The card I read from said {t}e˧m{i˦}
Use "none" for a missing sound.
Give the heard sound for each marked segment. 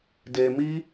d, i˦

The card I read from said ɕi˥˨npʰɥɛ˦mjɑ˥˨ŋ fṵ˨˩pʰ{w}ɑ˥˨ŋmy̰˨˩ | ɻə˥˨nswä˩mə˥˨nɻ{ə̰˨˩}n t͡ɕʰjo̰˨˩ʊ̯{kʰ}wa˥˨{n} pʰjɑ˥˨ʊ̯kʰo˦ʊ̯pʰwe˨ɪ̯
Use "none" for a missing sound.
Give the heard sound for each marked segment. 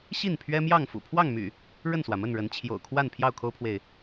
w, ə˨˦, kʰ, n

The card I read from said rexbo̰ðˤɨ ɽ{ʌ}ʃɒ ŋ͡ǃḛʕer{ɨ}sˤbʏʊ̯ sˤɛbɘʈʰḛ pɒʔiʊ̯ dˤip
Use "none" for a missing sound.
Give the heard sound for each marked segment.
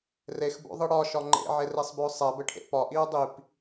ɒ, e

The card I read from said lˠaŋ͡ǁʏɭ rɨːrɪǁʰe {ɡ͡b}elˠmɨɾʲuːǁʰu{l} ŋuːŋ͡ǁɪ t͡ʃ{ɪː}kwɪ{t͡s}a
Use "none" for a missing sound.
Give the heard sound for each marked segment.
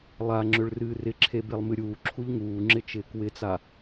b, ʎ, ɪː, t͡s

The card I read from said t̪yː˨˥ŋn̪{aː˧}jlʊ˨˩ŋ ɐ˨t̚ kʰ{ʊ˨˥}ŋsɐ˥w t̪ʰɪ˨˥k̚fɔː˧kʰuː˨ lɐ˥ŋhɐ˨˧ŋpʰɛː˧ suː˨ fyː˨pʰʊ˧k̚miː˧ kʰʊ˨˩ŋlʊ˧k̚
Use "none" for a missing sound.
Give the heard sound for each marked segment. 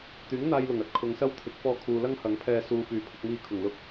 aː˧, ʊ˨˧

